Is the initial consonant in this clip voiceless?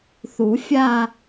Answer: yes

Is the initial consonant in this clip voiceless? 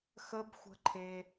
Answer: yes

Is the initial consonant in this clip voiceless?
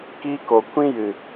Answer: yes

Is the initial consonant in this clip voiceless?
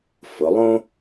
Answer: yes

